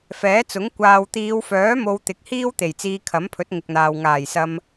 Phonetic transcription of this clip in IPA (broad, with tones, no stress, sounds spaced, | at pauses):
f ɛː˨˥ t͡s ʊ˨˥ ŋ kʷ aː˨ w t̪ iː˨˧ w f œː˨˥ m o˧ w t̪ ɪ˨˥ k̚ h iː˥ w t̪ e˨˩ j t͡s iː˧ kʰ ɐ˨˥ m pʰ ɵ˨˥ t̚ ŋ ɪ˨ k̚ n̪ aː˨ w ŋ aː˨˩ j s ɐ˧ m